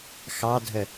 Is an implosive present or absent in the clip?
absent